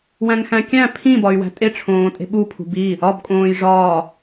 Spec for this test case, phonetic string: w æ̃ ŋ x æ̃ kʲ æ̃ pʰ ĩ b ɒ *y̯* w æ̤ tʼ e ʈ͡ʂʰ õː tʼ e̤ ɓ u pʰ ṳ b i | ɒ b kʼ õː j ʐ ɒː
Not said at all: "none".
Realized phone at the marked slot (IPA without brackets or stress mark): y̯